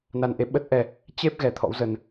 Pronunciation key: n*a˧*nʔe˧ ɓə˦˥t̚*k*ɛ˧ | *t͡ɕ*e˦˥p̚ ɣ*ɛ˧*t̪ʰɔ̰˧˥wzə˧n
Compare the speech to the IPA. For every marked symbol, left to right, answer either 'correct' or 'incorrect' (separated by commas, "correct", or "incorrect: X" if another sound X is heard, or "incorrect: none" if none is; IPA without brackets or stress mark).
correct, incorrect: ʔ, correct, correct